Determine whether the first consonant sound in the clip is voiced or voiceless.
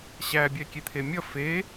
voiceless